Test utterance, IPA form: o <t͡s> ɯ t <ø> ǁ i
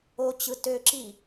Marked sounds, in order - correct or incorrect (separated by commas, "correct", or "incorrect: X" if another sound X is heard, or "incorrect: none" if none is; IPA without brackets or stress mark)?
incorrect: t͡ɕ, correct